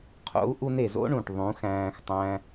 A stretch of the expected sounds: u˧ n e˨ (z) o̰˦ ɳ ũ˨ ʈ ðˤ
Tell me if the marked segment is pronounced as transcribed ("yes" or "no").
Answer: yes